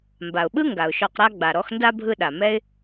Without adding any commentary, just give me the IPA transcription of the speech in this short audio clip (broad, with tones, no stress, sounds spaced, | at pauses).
m b a˨ ʊ̯ ɓ ɯ˥ ŋ ɡ a˩ ʊ̯ ʃ ɔ˨ q ɾ a˦ ɡ͡b a˨ ɾ ɔ˦ x n d a˥ bʱ ɯ˦ ɗ a˨ m ɛ˦ ɪ̯